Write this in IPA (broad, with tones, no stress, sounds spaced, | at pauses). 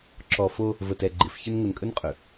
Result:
ǁ ɔ˨ f o˦ | v ə˨ t ɛ˨ ɡ͡ǃ ɪ˨˦ f ç ə˦ n ŋ ə˨ n kʼ ɵ˦ n qʼ ɵ˨